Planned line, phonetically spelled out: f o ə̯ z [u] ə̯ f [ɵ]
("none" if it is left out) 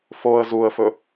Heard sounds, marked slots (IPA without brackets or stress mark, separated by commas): u, ɵ